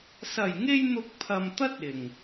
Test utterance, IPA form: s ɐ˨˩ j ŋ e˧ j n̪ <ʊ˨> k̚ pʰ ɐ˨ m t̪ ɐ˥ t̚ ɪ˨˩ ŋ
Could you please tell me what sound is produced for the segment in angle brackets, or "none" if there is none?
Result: ʊ˧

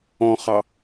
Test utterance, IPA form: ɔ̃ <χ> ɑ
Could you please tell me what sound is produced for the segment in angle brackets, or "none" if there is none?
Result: χ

